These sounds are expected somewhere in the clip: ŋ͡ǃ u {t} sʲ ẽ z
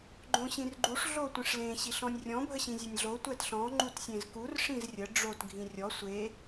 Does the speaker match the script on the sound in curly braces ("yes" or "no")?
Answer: yes